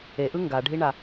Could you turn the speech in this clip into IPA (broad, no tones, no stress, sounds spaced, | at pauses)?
e ʔ ɯ ŋ ɡ a ɖʱ i ɳ a